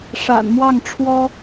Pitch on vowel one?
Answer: low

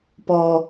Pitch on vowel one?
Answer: low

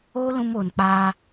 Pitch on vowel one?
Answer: high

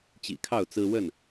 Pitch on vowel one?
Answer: low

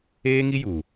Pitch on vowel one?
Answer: high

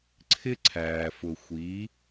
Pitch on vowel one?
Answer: high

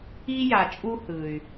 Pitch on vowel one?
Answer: high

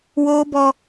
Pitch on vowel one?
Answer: high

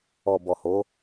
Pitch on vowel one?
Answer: low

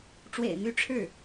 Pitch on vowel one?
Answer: low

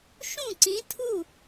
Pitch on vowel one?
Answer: falling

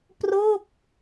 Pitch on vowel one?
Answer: falling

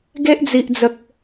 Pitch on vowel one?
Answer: high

